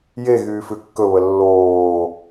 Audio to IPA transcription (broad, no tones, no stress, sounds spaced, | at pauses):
j e ɣ yː f ʉ kː ɵ β ə lː oː